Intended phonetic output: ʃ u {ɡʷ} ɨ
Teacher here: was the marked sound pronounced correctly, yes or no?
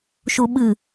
no